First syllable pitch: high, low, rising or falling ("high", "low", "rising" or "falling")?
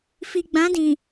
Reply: low